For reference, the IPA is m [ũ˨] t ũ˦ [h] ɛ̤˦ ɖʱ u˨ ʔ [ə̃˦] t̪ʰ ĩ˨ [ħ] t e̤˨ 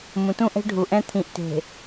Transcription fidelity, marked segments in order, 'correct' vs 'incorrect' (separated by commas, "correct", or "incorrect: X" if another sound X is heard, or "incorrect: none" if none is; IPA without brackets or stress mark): correct, incorrect: ʔ, incorrect: ɛ̃˦, incorrect: ʔ